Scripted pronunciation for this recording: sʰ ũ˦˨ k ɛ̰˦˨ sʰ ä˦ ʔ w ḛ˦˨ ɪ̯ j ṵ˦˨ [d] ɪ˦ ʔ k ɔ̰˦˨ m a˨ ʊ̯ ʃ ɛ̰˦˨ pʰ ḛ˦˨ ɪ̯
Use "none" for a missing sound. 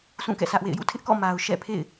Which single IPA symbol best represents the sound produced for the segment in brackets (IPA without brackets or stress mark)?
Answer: tʰ